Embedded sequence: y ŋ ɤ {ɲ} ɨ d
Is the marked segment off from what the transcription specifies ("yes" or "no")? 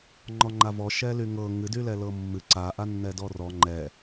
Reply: yes